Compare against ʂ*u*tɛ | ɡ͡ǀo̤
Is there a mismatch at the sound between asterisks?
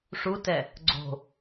no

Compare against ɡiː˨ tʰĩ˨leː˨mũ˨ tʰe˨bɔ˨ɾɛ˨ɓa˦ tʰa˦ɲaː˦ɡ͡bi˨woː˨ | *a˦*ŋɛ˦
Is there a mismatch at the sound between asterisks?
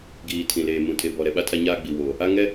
no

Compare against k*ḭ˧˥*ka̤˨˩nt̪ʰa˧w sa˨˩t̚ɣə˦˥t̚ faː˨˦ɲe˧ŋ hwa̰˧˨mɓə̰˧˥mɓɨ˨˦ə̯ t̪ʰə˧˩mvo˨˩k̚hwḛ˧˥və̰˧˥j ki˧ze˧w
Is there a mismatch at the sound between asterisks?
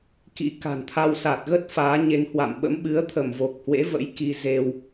no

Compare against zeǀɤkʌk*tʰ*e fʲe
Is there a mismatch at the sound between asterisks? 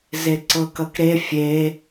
yes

